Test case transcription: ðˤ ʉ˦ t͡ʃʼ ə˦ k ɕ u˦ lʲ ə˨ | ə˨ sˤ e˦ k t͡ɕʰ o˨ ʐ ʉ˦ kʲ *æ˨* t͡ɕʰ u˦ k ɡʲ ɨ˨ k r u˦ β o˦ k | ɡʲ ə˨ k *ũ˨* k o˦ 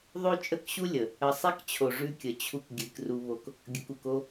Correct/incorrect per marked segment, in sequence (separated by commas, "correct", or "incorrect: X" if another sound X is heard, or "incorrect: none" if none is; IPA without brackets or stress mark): incorrect: ə˨, incorrect: u˨